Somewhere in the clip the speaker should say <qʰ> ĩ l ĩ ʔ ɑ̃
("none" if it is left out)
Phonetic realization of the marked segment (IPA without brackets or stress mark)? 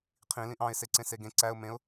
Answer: qʰ